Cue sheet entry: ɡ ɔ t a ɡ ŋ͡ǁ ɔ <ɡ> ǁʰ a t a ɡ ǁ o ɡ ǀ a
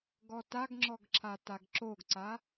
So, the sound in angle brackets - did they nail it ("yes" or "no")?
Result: yes